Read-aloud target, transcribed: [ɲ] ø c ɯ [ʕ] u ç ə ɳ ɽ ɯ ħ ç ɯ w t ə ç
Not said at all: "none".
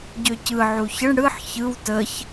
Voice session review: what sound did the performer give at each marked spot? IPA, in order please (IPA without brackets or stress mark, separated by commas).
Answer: ɟ, ʕ